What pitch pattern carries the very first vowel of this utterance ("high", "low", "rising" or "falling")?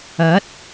rising